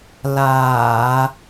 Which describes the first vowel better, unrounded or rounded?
unrounded